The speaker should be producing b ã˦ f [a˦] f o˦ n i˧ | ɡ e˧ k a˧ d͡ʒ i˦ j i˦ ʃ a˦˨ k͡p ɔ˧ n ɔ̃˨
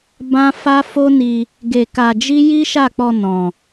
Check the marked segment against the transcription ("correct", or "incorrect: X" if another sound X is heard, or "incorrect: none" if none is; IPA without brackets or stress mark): correct